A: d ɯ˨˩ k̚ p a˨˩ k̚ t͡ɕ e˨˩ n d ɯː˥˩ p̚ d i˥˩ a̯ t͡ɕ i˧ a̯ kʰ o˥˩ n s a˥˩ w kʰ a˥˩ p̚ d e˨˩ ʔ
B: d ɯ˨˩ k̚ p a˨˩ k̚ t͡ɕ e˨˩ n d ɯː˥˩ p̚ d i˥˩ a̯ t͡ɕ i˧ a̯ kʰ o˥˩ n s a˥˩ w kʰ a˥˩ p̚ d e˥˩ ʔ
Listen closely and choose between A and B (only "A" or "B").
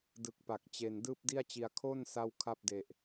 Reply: A